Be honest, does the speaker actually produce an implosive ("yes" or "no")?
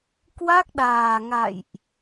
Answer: yes